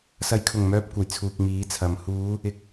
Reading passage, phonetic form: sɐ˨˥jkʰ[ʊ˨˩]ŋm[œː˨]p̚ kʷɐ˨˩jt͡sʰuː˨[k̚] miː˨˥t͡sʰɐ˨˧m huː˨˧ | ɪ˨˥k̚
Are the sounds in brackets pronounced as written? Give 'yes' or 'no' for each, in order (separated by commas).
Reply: yes, no, yes